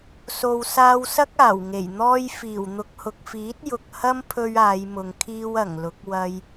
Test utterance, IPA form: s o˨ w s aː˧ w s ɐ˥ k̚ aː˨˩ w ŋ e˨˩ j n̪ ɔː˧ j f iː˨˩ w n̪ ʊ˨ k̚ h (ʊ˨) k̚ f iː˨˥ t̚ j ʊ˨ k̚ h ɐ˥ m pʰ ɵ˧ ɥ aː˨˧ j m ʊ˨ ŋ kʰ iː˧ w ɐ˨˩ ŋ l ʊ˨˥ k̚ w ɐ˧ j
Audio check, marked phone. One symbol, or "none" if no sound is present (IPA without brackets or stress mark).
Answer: ʊ˨